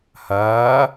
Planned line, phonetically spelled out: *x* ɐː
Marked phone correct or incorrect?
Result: incorrect